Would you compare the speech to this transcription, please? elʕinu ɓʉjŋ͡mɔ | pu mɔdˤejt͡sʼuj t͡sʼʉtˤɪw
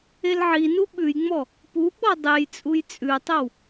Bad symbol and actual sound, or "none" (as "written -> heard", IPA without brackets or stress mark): m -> ɓ